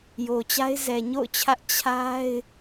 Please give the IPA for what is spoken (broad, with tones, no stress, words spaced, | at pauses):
jo˨t͡ɕa˦ɪ̯ zɛ˨ɲo̰˦˨ʊ̯t͡ɕʰä˦ʔ t͡ɕʰa˦ɪ̯